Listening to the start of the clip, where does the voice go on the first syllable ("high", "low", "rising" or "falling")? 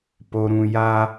low